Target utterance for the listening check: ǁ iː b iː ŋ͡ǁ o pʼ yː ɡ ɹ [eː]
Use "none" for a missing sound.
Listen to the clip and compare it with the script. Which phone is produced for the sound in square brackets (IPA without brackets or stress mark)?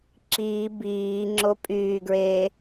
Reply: eː